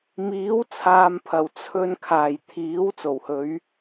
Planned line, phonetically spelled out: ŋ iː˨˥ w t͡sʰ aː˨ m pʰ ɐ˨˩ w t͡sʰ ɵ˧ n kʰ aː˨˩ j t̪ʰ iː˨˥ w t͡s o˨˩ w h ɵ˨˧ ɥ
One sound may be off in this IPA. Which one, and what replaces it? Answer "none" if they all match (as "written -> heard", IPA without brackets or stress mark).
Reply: ŋ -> m